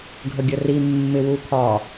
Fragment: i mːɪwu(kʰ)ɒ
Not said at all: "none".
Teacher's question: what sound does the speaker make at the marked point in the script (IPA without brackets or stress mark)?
kʰ